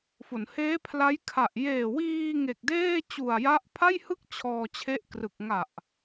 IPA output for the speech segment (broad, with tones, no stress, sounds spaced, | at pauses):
f o˩˦ n h eː˦˥ pʰ l a˦˥ j kʰ a˨˩ ʔ j eː˨˩ w iː˧ ŋ e˨˩ k̚ d eː˥˩ t͡ɕ u˨˩ a̯ j a˦˥ ʔ pʰ a˥˩ j h ɯ˥˩ k̚ t͡ɕʰ ɔː˧ t͡ɕʰ e˦˥ ʔ k r ɯ˨˩ k̚ ŋ a˨˩ ʔ